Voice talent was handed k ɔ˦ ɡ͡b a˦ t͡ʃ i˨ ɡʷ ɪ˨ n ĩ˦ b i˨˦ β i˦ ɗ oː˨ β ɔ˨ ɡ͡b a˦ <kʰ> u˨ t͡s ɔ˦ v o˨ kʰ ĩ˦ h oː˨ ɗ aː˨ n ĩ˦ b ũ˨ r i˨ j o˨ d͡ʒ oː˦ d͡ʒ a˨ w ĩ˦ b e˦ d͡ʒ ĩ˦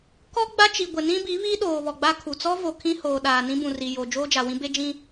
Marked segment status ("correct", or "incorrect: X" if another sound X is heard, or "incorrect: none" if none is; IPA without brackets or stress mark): correct